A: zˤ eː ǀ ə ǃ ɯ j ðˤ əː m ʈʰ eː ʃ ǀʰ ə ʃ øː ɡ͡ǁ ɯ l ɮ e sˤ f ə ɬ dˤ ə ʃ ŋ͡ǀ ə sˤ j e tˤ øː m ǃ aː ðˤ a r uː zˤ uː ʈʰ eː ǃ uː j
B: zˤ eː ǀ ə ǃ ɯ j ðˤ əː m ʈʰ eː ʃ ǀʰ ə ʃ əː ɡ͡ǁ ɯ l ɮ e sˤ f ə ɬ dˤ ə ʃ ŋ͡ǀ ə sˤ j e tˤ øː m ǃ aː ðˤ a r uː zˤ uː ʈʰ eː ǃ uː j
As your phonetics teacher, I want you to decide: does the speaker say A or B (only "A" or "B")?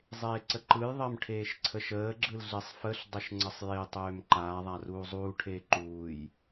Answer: B